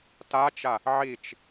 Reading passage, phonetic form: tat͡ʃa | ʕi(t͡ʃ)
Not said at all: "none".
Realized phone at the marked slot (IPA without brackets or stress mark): t͡ʃ